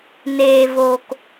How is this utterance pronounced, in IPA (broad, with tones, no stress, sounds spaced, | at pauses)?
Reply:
n eː˧ v o˧ k